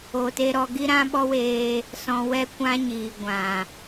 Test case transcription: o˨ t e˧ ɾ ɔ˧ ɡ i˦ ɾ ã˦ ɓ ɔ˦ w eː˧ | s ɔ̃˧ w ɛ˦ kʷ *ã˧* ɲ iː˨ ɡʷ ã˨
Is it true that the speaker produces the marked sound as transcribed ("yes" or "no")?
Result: no